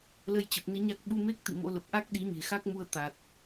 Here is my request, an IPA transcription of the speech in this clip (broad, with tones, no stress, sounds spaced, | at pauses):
l ə˧ j t͡ɕ ə˨˩ p̚ n i˧ ɲ a˦˥ k̚ ɓ u˧ m e˦˥ k̚ t̪ ḭ˧˨ m o̰˧˥ l ə˨˩ p̚ ʔ a˦˥ k̚ ɗ i˨˦ ɲ e̤˨˩ x a˦˥ k̚ m u˧ ə̯ t̪ a˨˩ t̚